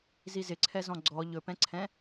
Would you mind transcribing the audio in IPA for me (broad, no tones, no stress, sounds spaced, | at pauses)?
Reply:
z i z ɪ ǀʰ ɛ z ɔ̃ ɡ͡ǀ ɔ ʎ ɵ p ɛ̃ ǀʰ ɛ̃